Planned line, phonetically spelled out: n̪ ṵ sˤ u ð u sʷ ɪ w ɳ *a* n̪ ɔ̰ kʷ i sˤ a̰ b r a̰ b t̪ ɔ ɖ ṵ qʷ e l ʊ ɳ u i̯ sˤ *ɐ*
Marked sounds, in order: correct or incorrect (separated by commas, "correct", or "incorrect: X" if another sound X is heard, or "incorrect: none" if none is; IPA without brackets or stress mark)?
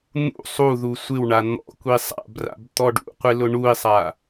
correct, incorrect: a